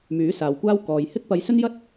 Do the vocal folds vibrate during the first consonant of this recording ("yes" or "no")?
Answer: yes